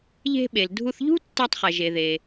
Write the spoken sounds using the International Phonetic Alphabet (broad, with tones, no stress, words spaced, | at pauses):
ʎe̤˧ɓe˩ldʱu˧θʎṳ˥ tːɛ˧tˤχɛ˩ʒe˩ ðe˩